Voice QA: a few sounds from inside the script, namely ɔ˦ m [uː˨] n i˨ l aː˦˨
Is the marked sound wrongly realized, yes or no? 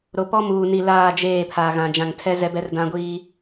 no